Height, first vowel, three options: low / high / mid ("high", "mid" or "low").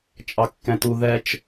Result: low